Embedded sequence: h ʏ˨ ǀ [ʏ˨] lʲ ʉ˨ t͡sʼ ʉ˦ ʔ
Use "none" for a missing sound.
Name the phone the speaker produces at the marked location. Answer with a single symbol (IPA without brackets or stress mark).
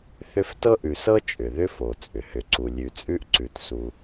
u˨